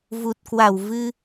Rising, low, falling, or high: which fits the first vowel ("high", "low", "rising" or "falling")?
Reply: low